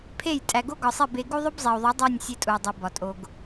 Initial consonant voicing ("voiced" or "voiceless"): voiceless